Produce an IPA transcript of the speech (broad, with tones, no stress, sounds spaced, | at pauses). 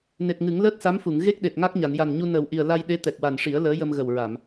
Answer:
n e˨˩ t̚ ŋ ɨ˨˩˦ ŋ l əː˦˥ t̚ s a˧˥ m f u˨˩˨ ŋ ɣ e˦˥ k̚ ɗ e˨˩ t̚ ŋ a˦˥ k̚ ɲ a˨˩˨ n j a˨˩ n ɲ u˧ n əː˨˩ w ʔ i˨˩ ə̯ l a˧ j ɗ e˧˥ t̪ ɛ˨˩ k̚ w a˨˩ n ʂ i˨˩˦ ə̯ l əː˧˥ j ə˧ m ɣ ə˨˩ w ɹ a˨˩˨ m